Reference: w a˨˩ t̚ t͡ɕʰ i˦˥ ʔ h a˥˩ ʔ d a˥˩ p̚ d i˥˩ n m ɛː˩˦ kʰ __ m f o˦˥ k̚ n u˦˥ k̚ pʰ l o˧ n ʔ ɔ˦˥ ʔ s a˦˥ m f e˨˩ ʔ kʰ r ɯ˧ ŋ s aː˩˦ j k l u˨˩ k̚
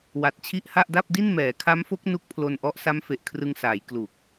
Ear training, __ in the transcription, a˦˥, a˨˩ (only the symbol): a˦˥